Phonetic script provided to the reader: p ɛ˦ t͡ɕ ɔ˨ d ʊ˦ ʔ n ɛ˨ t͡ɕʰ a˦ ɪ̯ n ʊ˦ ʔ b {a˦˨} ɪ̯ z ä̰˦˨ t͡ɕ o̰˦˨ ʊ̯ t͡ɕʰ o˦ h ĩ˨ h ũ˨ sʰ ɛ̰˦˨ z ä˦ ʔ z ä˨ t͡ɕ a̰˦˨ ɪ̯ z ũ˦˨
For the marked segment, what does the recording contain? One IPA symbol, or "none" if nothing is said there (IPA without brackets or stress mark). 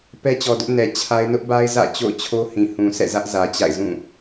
a˦